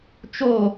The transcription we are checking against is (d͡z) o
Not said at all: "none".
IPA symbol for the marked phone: t͡ʃ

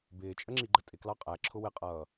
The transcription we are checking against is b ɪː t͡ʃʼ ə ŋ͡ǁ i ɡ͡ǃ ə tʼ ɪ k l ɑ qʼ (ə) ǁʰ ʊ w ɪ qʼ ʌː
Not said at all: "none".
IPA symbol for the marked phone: æ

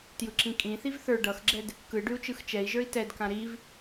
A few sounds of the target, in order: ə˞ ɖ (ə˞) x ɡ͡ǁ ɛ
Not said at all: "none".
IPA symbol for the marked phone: ʌ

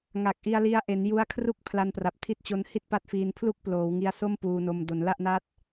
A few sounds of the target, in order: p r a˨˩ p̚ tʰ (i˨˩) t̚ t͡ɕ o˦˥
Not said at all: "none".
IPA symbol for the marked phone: i˥˩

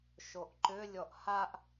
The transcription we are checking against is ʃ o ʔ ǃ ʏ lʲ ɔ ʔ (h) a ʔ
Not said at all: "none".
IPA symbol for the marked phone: h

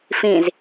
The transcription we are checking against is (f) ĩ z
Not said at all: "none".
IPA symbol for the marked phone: f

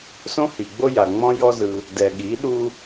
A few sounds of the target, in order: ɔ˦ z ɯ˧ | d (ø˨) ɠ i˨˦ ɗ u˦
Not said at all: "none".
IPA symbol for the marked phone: ɛ˨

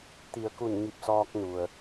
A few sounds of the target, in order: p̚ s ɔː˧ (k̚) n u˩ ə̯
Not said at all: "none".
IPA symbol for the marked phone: k̚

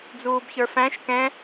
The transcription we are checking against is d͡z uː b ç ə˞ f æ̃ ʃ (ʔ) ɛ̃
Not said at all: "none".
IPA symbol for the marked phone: k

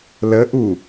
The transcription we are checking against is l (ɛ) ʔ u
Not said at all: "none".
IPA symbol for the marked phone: ə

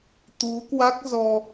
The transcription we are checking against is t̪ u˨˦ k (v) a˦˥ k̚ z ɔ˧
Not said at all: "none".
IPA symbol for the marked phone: w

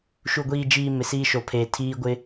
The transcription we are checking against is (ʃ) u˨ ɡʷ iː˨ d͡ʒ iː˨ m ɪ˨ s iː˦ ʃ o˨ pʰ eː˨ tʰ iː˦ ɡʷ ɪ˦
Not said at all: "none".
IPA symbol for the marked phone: ʃ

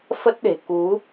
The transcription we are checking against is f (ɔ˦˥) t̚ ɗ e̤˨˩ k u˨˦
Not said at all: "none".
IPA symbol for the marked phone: ə˦˥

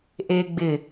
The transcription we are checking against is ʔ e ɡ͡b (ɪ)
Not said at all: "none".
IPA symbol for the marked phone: ɪ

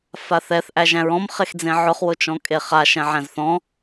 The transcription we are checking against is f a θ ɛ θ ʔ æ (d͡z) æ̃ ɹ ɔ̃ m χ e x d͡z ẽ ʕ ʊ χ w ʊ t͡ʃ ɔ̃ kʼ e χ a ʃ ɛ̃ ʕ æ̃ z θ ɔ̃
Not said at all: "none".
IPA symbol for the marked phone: ʒ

